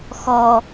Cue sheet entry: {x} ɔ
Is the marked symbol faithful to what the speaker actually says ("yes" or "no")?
yes